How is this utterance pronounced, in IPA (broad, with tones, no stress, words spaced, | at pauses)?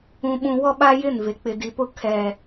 ũ˦ɓũ˦ wɔ˦ɓa˦jɪ˦˨nve˨ k͡pɪ˨di˨pʊ˦ kʰɛ˦